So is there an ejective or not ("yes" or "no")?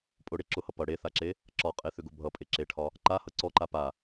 yes